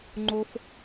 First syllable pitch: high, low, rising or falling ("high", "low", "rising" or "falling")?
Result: high